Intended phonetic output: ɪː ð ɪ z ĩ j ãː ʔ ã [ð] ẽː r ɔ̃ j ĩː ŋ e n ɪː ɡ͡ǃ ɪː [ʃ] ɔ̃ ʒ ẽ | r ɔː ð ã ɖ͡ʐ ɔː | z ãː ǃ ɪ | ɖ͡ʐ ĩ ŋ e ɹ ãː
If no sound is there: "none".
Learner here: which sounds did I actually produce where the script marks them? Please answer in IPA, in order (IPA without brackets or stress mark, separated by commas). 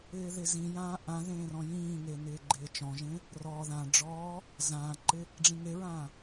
ð, t͡ʃ